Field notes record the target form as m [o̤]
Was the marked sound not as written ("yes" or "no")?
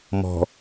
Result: yes